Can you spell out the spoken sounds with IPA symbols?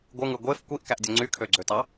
ɡʷ ɯ ŋ ɯ ɡʷ e f kʷ i ʔ k æ ʔ dʲ o ŋ͡ǀ y kʰ ø ɡ͡ǀ ø t ɑ

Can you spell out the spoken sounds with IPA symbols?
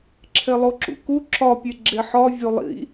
ǁʰ e lˠ o ǁ ṵ k u ǁ ɒ pʲ e ɡ͡ǁ e ħ ɒ vʲ o lˠ ḭ

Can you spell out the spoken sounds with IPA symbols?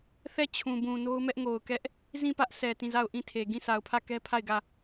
θ ɛ˦˨ t͡ɕʰ ũ˨ b ũ˨ n o˦ ʊ̯ m ɛ˦ ʔ ŋ o˨ ʊ̯ k ɛ˦ ʔ | z ĩ˦˨ p ä˦ ʔ s ɛ˨ t ĩ˦˨ z a˦˨ ʊ̯ ʔ ĩ˦˨ tʰ e˨ ɡ ĩ˦˨ sʰ a˨ ʊ̯ pʰ ä˦˨ k ɛ˦ pʰ a˦˨ ɪ̯ ɡ ä˦˨

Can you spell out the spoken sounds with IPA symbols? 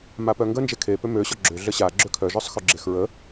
m a p œ ŋ ɡ ə n d͡ʒ e kʰ e p ø m ø ɕ ɔ ɡ͡ǁ ø ɮ ə ɕ a ɡ͡ǁ ø kʰ œ ʒ œ sˤ x ø ɡ͡ǁ e x ɹ ə

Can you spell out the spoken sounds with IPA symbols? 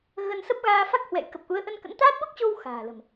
ɣ ə˧ n s ə˦˥ p̚ ɣ aː˧ f a˦˥ k̚ h w ɛ̰˧˨ j k ə˨˩ p̚ ʔ u˨˦ ə̯ ʔ ə˧ n k ə̰˧˥ n t̪ aː˦˥ t̚ ɓ o˦˥ k̚ t͡ɕ o˧ w x a̤ː˨˩ l ə̤˨˩ m

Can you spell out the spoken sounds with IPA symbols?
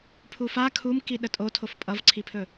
pʰ u f a kʰ u m k i ɗ ə tʼ o tʰ o f pʼ ʌ v ǀʰ i pʰ ɵ

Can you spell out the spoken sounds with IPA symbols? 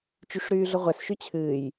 t͡ʃ y ʂ ɾ yː ɮ ʊ ʁʷ ɛ s ʃ y t͡ɕʰ ɨː j

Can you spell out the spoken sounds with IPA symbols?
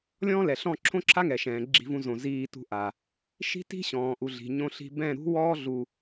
lʲ ɔ̃ː˦ l ɛ˨ ɬ ɔ̃˦˨ ǁʰ õ˦ ǁʰ a˦ ŋ ɛ˨ ʃ ɛ̃ː˨ ɡ͡ǁ i̤˧ v ũ˧ z õ˨ z iː˧ t ṳ˧ ʔ a˨ | ʃ i̤˦ t i̤˦ ɕ ɔ̃ː˨ ʔ u˨ ɮ i̤˨ ɲ õ˧ ɬ i̤˧ b ɛ̃˦˨ ɾ ṳ˦ w ɔː˦ ɮ u˧

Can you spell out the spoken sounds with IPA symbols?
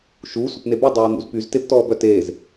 ʃ u sʷ a̤ p n e b y dˤ œː n̪ ṵ z p y z t e p t ɔː b œ t eː z

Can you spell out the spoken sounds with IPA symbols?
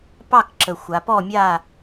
p ɑ˥˨ k ǁ ə˨˩ xʷ a˩˧ p ɔ˥˨ mʲ a˥˨

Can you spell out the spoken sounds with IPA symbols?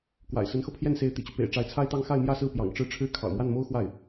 k w a̰˨˩ ɪ̯ s ə˧˥ n x ɤ˧ pʰ j ɛ˥˩ n s e˧˥ ɪ̯ t̪ ḭ˨˩ t͡ɕ y˦ p ḛ˨˩ ɪ̯ ʈ͡ʂ a˧˥ ɪ̯ t͡sʰ a˥ ɪ̯ t̪ ɑ˥ ŋ x a˥˧ ɪ̯ m j ä˥˧ s ɹ̩˥˩ p j ɑ̰˨˩ ŋ ʈ͡ʂ ɻ̩˥˩ ʈ͡ʂʰ ɻ̩˥ kʰ ɑ̰˨˩ ʊ̯ m w a˥˩ n m o˥ ʊ̯ x w a˥˩ ɪ̯

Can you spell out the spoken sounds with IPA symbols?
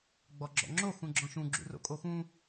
ɡ͡b ɔ ɡ͡ǁ ɔ̰ ŋ͡ǁ o x ũ ɡ͡ǁ ɔ̃ ʃ ũ ɡ͡ǁ ṵ r o̰ kʼ o x ũ

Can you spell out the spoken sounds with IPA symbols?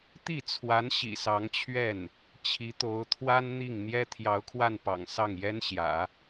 t̪ i˥˩ t͡sʰ w a˧˥ n ɕ ḭ˨˩ s ɑ˧˥ ŋ t͡ɕʰ ɥ ɛ˥˩ n | t͡ɕʰ i˧˥ t̪ o˧˥ ʊ̯ t̪ʰ w a˥ n n̪ i˥˩ ŋ n̪ j ɛ˥ t̪ʰ j ɑ˧˥ ʊ̯ kʰ w a˥˩ n p ɑ̰˨˩ ŋ s ɑ˥˩ ŋ j ɛ˥ n ɕ j ä̰˨˩˦

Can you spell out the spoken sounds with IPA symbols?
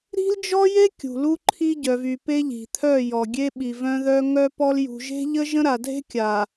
ɾ i̤˦ l d͡ʒ ɔ˦ j e˦ kʲ ṳ˨ l u˦ ǃʰ i˦ ɟ œ˨ v y˨ p e˦ ʎ i̤˨ t̪ʰ œ˦˨ j ɔ˨ ɡʲ e˦ ɓ i˨ v œ̃˦ ð œ˦ ŋ œ˦ p ɔ˦ l j ṳ˨ ʒ e̤˦ ʎ ə˦ ʒ ə̃˦ ɾ a˨ dʱ e̤˦ kʲ a˨

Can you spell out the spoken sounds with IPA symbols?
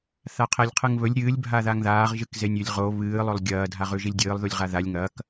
θ a qʰ e lʲ qʰ ɨ ŋ β ɵ lʲ ɾʲ ɨː lʲ bʱ a ð a ŋ ð aː ʁ ʒ ɨ k z e nʲ ʉ lʲ ʁ o β ɨː lˠ ɵ lˠ ɡʲ ɐː dʱ a ʁ ʉ ʒ i lʲ dʲ ɨː lˠ ð u lʲ ʁ a ð a lʲ ŋ ɐː k

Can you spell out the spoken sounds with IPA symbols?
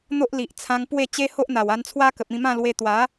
n̪ o˦ ʔ l i˨ ʔ t͡sʰ ã˧ ŋ p w e˥˧ t͡ɕ e˦ h o˦ ʔ n̪ a˨˩ w a˧ n t͡sʰ w a˦ k ə˨ p̚ ĩ˧ m ã˥˧ l w e˧ t̪ w a˨˦

